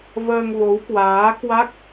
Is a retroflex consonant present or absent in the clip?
absent